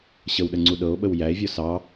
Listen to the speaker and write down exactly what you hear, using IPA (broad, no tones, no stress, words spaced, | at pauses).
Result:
ɕəwɗəŋ͡ǀu ɗɤo̯ɓəw jæe̯vʲɔ sɑ